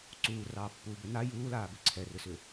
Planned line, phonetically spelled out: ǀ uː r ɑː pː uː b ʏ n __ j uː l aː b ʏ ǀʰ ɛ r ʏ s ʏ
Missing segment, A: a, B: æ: A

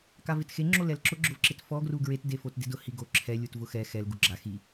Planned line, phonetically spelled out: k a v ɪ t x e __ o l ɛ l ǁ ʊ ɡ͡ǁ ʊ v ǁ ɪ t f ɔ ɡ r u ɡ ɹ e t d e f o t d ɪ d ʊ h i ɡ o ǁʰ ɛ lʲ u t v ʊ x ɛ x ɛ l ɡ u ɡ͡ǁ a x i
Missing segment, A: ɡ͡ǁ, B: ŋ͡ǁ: B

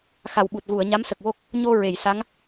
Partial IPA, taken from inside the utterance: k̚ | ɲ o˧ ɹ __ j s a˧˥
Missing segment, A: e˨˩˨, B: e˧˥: A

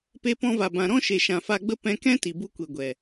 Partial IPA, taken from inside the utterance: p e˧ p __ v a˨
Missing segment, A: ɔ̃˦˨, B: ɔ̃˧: B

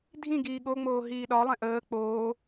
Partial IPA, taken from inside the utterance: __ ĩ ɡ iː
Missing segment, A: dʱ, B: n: A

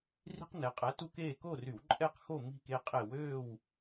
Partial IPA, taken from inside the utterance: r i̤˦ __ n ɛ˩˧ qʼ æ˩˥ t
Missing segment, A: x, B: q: B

